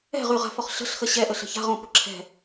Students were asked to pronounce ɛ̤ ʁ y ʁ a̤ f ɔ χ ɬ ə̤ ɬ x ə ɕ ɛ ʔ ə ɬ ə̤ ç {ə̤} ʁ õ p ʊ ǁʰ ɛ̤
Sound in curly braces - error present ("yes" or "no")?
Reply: yes